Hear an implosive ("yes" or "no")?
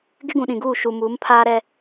yes